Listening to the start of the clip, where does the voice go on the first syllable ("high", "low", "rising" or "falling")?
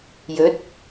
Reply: rising